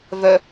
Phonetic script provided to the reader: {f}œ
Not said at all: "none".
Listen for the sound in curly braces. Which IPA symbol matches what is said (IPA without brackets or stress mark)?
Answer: v